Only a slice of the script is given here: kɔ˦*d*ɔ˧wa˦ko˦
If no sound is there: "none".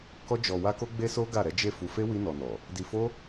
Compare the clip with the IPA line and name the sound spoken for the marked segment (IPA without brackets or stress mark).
d͡ʒ